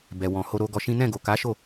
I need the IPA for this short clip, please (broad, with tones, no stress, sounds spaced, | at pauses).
b ɛ˨ w ɔ̃˨ h o˧ ɾ o˧ ɡ ɔ˧ ʃ ĩ˦ n ɛ̃˦˨ ɡ o˨ k a˨˦ ʃ o˦˨